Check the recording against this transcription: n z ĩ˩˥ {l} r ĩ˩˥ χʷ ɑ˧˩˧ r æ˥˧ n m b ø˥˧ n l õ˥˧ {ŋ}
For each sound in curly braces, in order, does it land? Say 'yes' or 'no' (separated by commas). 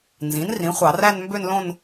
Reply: no, no